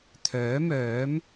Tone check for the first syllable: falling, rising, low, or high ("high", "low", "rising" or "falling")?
rising